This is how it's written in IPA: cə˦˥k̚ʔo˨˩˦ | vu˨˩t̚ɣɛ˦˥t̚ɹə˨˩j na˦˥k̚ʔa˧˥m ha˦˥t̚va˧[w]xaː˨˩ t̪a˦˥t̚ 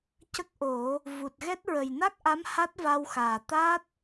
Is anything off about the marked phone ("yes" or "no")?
no